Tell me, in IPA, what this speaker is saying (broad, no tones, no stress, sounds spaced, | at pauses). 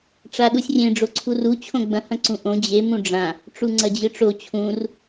ʈ͡ʂ a ɗ u sʲ rʲ ẽ ɖ͡ʐ o ǀʰ u r u t͡ɕʰ õ ɡ͡b ɐ̃ h ɐ̃ ǀ ũ ʔ õ d͡ʑ e m ũ ɖ͡ʐ ã | ʈ͡ʂ u ŋ͡ǀ ɐ d͡ʑ ɨ ʈ͡ʂ o t͡ɕʰ ũ r